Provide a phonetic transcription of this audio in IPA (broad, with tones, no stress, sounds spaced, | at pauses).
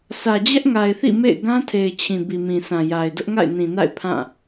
sʰ ä˨ d͡ʑ ɛ˦ ʔ ŋ a˨ ɪ̯ θ ḭ˦˨ m ḛ˦˨ ɪ̯ ɡ ã˦ tʰ e˨ ɪ̯ t͡ɕʰ ĩ˨ b i˨ m ĩ˨ sʰ ã˨ j a˨ ɪ̯ d ʊ˦ ʔ ŋ a̰˦˨ ɪ̯ n ĩ˨ n a̰˦˨ ɪ̯ pʰ ã˦˨